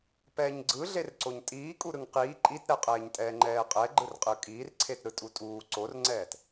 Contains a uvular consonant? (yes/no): yes